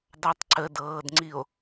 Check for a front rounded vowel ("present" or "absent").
absent